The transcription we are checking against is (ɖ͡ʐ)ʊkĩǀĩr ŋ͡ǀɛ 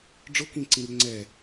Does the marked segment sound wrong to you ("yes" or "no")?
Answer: no